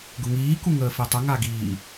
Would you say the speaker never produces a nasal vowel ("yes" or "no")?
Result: yes